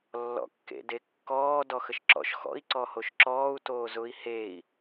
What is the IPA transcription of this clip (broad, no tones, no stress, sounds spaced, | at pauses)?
lː ɔ̰ kː ḛ d e kː ɔː d ɔ x ə ʃ ǁ ɔ̰ ʃ x ɔ̰ i̯ ǀ ɔ h o ʃ ǁ ɔː u̯ t oː z ʊ i̯ h e i̯